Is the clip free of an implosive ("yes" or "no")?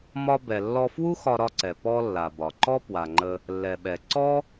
no